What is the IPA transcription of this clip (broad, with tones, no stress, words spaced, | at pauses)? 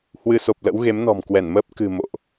hwɨ˧ so˨˩p̚lə̰˧˥w ɣe˨˦mnɔ̤˨˩mkwɛ˧˩nməː˦˥p̚ kɨ̤˨˩ mo̰˧˨ʔ